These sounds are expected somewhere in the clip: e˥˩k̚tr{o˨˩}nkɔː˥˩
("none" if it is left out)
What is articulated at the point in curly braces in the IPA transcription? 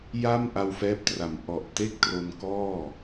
o˧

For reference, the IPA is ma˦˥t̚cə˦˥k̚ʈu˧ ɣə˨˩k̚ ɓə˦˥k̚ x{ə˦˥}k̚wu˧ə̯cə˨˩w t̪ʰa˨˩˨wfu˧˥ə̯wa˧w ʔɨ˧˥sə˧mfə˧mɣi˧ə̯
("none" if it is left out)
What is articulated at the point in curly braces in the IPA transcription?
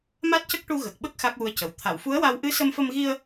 a˦˥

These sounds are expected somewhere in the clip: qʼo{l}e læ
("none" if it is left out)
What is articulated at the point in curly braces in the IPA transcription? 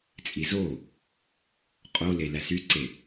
l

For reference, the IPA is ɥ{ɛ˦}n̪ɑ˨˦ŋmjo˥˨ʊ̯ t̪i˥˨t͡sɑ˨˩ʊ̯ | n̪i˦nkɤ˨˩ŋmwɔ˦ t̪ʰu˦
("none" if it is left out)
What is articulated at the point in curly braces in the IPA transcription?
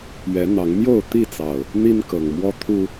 ɛ˨˦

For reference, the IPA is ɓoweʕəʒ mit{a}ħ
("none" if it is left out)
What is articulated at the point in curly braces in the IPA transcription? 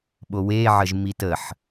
ə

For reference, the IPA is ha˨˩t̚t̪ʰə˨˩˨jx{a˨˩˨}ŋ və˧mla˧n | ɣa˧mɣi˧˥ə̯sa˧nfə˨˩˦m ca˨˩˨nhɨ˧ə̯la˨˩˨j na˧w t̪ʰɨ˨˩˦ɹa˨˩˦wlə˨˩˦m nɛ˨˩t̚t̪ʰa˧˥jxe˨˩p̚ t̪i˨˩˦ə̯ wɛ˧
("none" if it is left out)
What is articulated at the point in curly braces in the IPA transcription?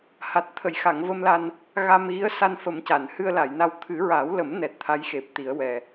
a˨˩˨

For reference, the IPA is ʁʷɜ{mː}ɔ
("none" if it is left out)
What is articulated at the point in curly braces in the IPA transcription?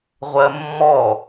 mː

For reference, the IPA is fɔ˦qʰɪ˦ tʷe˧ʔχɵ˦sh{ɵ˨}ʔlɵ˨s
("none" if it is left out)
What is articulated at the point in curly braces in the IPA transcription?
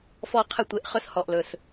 ɔ˨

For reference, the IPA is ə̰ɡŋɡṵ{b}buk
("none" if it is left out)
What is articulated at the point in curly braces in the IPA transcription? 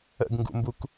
m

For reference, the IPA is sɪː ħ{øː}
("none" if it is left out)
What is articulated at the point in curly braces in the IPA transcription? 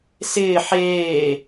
eː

